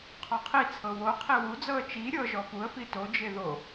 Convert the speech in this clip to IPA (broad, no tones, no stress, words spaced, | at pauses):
qʰɔqʰit͡sʰɤ wo qʰiwud͡zɤə̯ t͡ʃi ɾʲɤʒɔ fuə̯fi tod͡ʒe ðo